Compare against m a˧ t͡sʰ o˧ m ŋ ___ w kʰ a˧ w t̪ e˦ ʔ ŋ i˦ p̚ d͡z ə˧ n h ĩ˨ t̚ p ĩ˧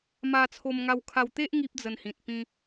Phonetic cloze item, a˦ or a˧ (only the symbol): a˧